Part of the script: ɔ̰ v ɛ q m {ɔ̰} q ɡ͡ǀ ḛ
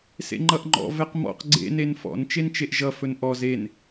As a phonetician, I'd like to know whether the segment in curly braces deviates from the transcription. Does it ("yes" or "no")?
no